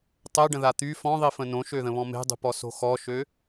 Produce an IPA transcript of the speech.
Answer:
tˤɛɖə̃ða t̪y fɔ̃ðˤifə̃ nõʃøðə̃βɔ̃ me̤dˤṳpɔso̤ xɔʃø

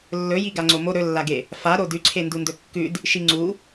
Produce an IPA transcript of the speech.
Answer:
lːɵjiɡa ŋ͡ǀomo ɾɵlːaɡe | faɾo dʉǀʰe ndundɵkːʉd | ʃiŋ͡ǀu

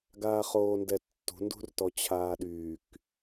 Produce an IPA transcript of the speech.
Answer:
ɡaːχoːndɛtːṳ ndṳrtɔt͡ɕʰaːɗyːk

